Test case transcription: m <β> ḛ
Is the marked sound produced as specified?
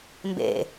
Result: no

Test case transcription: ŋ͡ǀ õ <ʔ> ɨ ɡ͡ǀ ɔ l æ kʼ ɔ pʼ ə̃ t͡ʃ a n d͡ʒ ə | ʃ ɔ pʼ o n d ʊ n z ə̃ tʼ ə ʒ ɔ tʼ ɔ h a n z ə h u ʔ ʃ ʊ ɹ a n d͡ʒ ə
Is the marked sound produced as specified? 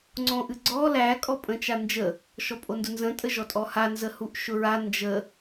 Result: yes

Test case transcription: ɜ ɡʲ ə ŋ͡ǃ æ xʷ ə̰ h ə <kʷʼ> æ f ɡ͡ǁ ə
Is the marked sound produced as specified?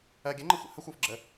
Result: no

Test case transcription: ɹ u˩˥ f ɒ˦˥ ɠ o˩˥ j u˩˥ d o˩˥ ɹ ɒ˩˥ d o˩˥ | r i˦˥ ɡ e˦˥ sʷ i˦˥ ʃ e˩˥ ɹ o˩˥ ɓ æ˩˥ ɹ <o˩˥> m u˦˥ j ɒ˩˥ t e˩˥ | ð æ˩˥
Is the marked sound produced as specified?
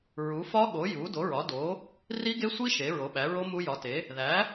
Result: no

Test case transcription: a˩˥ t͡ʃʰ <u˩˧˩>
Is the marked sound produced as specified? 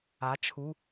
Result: yes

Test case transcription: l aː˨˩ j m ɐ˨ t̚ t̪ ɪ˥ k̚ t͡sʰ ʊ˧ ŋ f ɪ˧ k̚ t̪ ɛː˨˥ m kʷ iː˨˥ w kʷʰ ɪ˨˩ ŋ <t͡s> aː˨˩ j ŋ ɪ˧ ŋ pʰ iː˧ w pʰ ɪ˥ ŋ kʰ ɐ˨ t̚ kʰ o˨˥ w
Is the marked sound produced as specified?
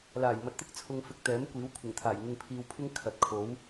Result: no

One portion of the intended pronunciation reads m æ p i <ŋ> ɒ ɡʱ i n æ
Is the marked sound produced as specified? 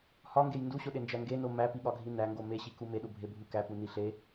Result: no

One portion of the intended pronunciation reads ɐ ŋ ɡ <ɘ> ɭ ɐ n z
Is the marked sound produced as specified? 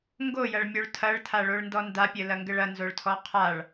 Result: yes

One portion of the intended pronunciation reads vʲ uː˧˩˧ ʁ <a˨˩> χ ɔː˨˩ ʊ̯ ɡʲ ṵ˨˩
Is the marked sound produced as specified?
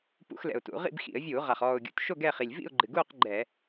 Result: yes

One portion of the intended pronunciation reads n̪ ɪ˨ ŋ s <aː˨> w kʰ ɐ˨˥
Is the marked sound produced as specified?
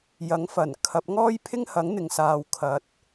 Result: yes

